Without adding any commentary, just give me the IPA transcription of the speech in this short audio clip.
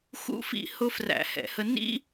x ṵ˦ f ḭ˥˨ h ʊ˦ f r æ̰˧˩˧ h ɛ̰˧˩˧ h ə˦ n ḭ˦

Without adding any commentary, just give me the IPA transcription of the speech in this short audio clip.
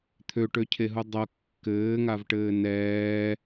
t̪ʰ ø ʈ ø cʰ e ɦ u dˤ ɤ kː ɘː ŋ a v ʈ ɘː n ɛː

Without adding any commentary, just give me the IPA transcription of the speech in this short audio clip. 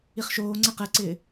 i χ ʃ oː ŋ͡ǀ ɛ q ɛ ǀ ɪː

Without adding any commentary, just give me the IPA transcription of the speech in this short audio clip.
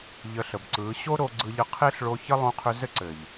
ʎ ə˧ ɬ ə˨ b ǀ ɯ˨˦ ɕ o˦ ɾ o˧ ɡ͡ǀ ɯ˧ ʎ ə˧ qʰ e˦ ɬ ɭ o˧ ç ə˦ lˠ õ˧ qʰ ʏ˧ z ɘ˦ ǀ ɘ˨ ʎ

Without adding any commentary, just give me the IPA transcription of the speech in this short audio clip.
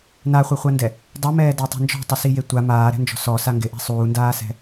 n a χʷ e χʷ a n d ɛ | dˤ i m ɛː d ɛ tˤ ɛ̤ n d͡ʒ ɔ̤ tˤ ɪ s i j e tʷ a m aː ɾ ɛ̤ n d͡ʒ ɔ̤ s ɔ s a ŋ ɡ ɪ ʔ ɛ̤ sˤ uː n d aː s ɛ̤

